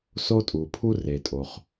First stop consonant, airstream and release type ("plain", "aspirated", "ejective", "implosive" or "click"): ejective